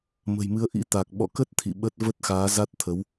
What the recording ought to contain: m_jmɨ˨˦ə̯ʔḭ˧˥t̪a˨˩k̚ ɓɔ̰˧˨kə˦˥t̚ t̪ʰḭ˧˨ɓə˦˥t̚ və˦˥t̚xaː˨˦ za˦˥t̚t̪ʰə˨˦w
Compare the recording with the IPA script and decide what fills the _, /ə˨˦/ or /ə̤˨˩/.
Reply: ə̤˨˩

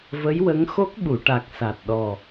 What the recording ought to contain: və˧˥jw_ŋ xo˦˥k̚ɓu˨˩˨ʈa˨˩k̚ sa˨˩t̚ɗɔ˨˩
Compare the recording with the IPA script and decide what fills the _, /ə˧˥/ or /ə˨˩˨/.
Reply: ə˧˥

